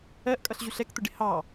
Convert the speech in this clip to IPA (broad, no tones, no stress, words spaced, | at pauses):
ɜʔkʼʌɬʑuɬ ɛkt̪ʊɖɪ hɑ